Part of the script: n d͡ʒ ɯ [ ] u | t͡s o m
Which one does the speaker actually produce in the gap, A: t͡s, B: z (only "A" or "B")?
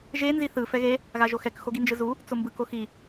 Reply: B